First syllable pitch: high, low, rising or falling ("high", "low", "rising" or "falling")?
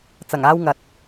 low